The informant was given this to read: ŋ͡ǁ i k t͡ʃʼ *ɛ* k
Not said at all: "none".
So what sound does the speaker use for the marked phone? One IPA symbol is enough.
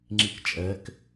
ɛ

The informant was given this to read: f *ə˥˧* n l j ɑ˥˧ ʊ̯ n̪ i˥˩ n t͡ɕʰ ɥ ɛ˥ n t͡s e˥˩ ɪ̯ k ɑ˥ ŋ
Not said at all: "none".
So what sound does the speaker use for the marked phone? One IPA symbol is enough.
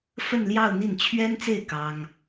ə˥˧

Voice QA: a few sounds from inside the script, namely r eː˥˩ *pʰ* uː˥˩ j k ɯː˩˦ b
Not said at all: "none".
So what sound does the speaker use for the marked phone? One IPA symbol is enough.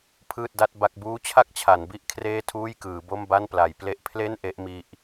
tʰ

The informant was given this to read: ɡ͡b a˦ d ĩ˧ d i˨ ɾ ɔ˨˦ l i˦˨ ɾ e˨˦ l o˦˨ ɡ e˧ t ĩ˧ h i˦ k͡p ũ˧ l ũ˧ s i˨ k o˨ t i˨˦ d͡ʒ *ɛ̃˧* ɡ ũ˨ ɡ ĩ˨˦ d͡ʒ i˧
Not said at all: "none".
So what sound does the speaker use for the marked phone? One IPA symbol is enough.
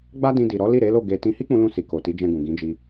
ɛ̃˧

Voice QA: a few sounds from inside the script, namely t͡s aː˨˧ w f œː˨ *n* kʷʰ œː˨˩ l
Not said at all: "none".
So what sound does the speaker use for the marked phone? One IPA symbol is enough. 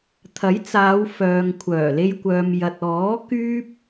ŋ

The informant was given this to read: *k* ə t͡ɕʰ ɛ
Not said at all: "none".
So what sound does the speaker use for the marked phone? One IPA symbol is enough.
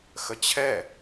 x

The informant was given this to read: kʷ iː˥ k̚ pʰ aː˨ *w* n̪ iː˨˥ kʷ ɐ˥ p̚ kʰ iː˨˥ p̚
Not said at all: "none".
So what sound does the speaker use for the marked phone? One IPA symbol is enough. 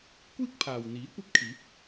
w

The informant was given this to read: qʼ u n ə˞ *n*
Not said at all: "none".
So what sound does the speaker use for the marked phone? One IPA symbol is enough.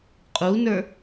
none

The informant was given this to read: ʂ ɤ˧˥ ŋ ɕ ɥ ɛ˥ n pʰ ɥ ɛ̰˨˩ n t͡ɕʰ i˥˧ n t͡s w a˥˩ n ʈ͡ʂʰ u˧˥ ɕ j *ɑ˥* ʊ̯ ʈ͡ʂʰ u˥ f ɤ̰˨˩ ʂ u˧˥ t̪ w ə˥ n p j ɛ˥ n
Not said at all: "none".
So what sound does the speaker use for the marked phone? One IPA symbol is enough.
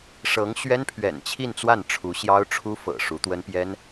ɑ˥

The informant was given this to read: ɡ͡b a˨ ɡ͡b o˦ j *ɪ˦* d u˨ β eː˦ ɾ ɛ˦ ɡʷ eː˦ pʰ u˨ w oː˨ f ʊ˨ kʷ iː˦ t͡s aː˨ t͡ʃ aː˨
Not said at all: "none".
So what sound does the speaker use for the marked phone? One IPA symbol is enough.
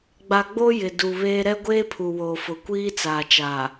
ɪ˨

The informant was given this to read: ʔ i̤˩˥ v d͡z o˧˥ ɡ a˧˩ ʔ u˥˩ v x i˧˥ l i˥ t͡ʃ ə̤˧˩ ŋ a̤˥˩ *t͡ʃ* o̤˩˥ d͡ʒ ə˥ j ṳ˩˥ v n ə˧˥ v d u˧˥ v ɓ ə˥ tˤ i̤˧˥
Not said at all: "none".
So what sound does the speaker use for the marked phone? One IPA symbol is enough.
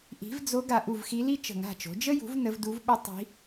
t͡ʃ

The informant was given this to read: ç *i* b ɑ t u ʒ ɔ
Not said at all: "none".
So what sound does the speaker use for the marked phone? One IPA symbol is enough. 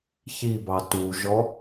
i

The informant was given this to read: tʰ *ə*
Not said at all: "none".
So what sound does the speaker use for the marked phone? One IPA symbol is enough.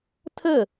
ə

